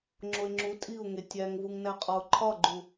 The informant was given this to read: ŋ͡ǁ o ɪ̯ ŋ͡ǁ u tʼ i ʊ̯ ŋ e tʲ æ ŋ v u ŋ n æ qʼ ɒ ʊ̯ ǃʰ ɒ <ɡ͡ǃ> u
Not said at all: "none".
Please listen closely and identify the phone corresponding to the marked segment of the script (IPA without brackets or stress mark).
ɡ͡ǃ